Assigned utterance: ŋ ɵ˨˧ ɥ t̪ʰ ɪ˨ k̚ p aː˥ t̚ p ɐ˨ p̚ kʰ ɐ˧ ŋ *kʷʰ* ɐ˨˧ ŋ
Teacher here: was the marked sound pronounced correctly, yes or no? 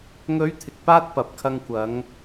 no